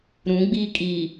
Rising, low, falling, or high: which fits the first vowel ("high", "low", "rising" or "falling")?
rising